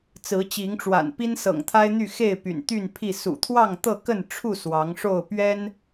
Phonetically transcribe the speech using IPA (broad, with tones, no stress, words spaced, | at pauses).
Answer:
t͡sɹ̩˨˦t͡ɕi˨˦ŋʈ͡ʂwa̰˨˩n pi˦nsɤ̰˨˩ŋt̪ʰa˦ɪ̯n̪y˥˨ xe˥˨ɪ̯py̰˨˩nt̪y˥˨npʰi˥˨ sṵ˨˩t̪ʰwɑ˥˨ŋ t̪ɤ˥˨kə˥˨nʈ͡ʂʰu˥˨ swɑ˨˦ŋʂo˥˨ʊ̯ pɥɛ˦n